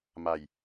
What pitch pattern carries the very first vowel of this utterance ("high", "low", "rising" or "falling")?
low